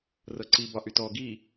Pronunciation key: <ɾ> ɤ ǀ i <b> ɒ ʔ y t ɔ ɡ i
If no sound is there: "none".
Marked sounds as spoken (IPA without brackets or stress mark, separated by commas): r, b